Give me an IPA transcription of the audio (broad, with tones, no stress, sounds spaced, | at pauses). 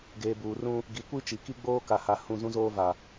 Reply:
ɡ eː˨ b uː˨ r ũ˦ | ɡ i˨ kʷ i˦ t͡ʃ i˨ k i˦ ɡ͡b oː˦ k a˨ h a˨ h ũ˦˨ z ũ˦ z oː˦ v a˨